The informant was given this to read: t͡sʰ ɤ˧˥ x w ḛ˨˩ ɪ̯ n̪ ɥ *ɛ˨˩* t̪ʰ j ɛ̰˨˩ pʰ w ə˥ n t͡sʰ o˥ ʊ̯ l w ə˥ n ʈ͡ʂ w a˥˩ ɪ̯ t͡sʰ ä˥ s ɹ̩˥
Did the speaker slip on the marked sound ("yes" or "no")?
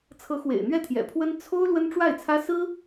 yes